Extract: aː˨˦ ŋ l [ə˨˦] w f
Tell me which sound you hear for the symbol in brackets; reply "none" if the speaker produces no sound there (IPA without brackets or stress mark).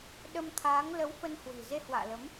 ə˨˦